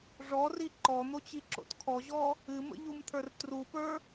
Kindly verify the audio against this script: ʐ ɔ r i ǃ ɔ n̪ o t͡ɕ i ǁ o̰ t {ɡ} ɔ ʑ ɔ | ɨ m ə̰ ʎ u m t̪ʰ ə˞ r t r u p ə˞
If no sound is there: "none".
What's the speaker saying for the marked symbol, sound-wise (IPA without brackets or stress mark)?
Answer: kʰ